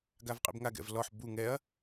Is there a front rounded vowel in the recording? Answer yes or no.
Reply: no